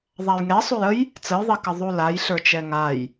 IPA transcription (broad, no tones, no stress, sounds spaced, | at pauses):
ðˤ a j ŋ ɛ sˤ u j ə j | t͡s ə j ðˤ i k ə ðˤ u l a j ɬ ə˞ t͡ʃ ɛ ŋ a j